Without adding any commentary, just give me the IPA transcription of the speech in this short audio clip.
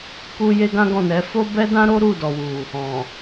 k u˧ j e˦ ɡ ã˦ ɡ ɔ̃˦˨ n ɛ˨˦ f o˦ b ɛ˦ d ã˦ ɾ o˦ ɾ u˦˨ d ɔ˨ w u˨ | ɔ̃˨

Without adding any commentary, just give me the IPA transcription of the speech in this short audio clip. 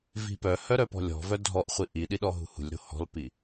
v i̤ p œ h œ ɾ œ p ɔ̤ lʲ ɔ̤ v œ dʱ ɔ ʔ χʷ i ʔ i ɗ i ɗ ɔ ɦ ṳ h ṳ lʲ ɾ o̤ h ɔ̤ l p i

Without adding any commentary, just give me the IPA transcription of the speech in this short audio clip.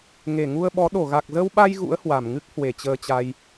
ŋ e˧˩ ŋ u˧ ə̯ ɓ ɔ˨˦ ɗ o˧˩ ɣ a˨˩ k̚ z ə˧ w ɓ a˧ j ɣ ṵ˧˥ ə̯ h w a˧˩ m ŋ ɨ˦˥ k̚ h w e˧˩ t͡ɕ əː˧ t͡ɕ a˧ j

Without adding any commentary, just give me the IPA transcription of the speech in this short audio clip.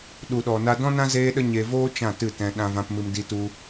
ɗ u˨ ɗ ɔ˨ n a˧ d ɔ̃˦ n ã˦ z eː˧ ɗ ə˧ ɲ e˧ v oː˦ t͡ʃ ã˦˨ t ɨ˦˨ t ɛ̃˧ ɗ ã˧ v ã˧ p m ɨ˧ m d i˧ t u˧

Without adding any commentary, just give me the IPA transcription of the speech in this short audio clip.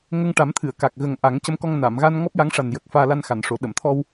ŋ ə˧ ŋ ʈ a˨˩˦ m t̪ʰ ɨ˨˩˨ ə̯ k a˨˩ k̚ ɣ ə˨˩ ŋ ʔ a˨˩˦ ŋ c ə˧˥ m k ɔ˧ ŋ n a˨˩˨ m ɣ a˧ n ŋ ɔ˦˥ p̚ j a˧˥ ŋ ʂ a˨˩ n j ə˨˩ k̚ f aː˧ l a˧ n x a˨˩˨ n ʂ o˨˩˦ ɗ ə˨˩˨ m t̪ʰ ɔ˧ w

